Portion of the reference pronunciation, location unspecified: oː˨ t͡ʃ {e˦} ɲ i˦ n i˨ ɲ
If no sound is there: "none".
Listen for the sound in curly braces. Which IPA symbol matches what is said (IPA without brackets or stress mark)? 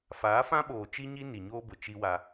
i˦